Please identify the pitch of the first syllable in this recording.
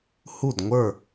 falling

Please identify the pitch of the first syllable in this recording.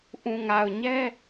low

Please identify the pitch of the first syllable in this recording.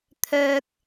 high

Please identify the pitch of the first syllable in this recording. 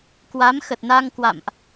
rising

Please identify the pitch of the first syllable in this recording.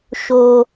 low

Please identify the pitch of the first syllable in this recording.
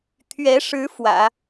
rising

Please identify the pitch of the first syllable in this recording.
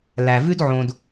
low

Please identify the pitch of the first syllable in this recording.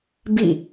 falling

